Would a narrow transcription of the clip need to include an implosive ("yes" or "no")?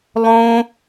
no